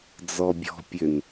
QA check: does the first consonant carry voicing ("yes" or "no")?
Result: yes